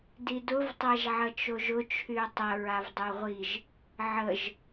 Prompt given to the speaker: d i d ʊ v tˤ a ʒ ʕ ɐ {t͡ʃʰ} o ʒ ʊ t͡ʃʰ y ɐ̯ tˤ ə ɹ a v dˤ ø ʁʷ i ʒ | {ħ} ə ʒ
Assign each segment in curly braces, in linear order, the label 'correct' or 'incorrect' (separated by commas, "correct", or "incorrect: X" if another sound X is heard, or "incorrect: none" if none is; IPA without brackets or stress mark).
incorrect: t͡ʃ, incorrect: ʕ